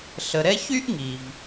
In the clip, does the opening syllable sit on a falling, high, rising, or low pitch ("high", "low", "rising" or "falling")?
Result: low